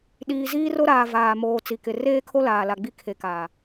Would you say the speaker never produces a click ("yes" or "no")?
yes